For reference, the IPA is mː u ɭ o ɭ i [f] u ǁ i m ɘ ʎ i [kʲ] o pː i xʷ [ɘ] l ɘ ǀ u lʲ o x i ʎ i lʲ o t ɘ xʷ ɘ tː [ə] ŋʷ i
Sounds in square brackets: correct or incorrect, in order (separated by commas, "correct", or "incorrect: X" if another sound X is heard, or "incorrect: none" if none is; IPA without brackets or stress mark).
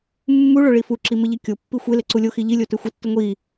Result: correct, correct, incorrect: e, correct